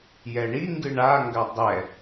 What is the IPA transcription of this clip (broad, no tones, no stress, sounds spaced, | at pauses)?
j ɛ ɳ i ŋ ɡ ɨ ɳ a ŋ ɡ a dˤ ɛ